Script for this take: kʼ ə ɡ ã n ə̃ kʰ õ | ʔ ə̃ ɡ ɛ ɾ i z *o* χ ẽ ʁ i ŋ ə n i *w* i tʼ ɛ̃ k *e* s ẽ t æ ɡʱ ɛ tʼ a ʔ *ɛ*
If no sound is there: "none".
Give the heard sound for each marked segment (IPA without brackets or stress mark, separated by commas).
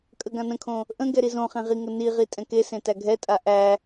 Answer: õ, ʁ, e, æ